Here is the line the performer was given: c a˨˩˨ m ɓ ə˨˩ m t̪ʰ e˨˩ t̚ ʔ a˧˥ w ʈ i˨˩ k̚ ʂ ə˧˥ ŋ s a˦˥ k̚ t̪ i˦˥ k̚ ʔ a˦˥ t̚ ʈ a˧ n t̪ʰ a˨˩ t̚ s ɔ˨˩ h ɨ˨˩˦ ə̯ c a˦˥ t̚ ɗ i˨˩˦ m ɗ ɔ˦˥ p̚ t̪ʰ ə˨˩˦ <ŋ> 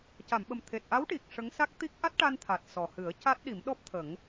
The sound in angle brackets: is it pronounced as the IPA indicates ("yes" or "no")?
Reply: yes